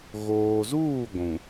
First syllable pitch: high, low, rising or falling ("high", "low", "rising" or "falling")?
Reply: low